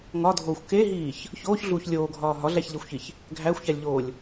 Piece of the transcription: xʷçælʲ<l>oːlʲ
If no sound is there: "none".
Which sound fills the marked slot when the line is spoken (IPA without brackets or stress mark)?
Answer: ʎ